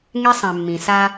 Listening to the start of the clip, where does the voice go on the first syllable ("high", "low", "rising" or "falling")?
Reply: high